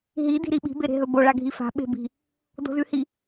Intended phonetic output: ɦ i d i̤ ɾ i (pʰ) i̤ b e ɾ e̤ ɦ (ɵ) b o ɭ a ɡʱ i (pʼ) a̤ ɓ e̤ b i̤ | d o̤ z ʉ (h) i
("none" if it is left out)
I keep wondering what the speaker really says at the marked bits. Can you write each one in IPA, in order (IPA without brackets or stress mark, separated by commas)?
ɓ, ɵ, f, h